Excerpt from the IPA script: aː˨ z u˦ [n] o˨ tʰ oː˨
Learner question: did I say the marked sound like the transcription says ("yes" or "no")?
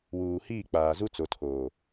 no